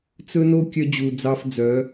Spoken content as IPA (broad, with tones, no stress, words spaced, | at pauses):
t͡sɵ˦no˦ kʲœ˧d͡ʑu˨ d͡zɑ˧fd͡zœ˨˦